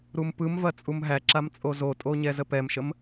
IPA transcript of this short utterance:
ɾumpɯmvɐ t͡sʼumɦæǁam t͡sʼozotʼo ɲɛzəpɛmʃəm

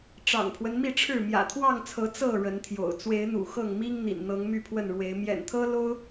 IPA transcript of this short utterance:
ʈ͡ʂɑ̰˨˩ŋpʰwə˦nmi˥˨ʈ͡ʂʰɻ̩˥˨ mjä̰˨˩t̪ʰwɑ˥˨ŋt͡sʰɤ˨˦ t͡sɤ˥˨ ɻə˨˦nt̪ʰjo̰˨˩ʊ̯ t͡swe˨˦ɪ̯n̪ṵ˨˩xɤ˥˨ŋmi˦ŋ n̪ḭ˨˩nn̪ɤ˨˦ŋ my˥˨pʰwə˥˨nɻwe˨˦ɪ̯ mjɛ̰˨˩nt̪ʰɤ˦ lo˦ʊ̯

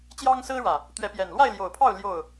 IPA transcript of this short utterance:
t͡ɕjɑ˦ŋ sɹ̩˦ɻä˨˩ | t̪ɥɛ˨˦pjɛ˨˩n lwa˥˨ɪ̯ljo˨˩ʊ̯pʰɑ˥˨ʊ̯ ljo˥˨ʊ̯

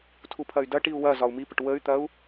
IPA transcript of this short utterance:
tʰupʰɐy̯dɐ ʈiu̯wɐ zɒu̯mipəʈ wəy̯t̪ɐu̯

